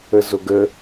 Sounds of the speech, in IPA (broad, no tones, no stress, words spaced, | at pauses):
əzoɡə